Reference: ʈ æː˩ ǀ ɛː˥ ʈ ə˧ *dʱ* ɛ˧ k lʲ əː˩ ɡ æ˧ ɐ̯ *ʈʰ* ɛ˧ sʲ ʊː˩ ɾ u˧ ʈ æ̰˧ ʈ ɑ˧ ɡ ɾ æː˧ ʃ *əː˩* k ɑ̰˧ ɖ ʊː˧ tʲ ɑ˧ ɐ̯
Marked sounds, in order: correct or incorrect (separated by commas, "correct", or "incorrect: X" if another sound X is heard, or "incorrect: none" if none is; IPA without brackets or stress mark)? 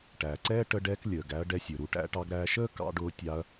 incorrect: ɖ, incorrect: ɖ, incorrect: əː˥